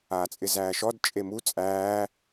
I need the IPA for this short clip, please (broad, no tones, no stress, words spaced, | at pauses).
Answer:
aːt͡sʼɪzæːʃɔd t͡ʃʼemu t͡sʼæː